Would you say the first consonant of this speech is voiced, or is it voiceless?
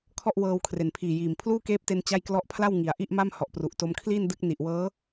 voiceless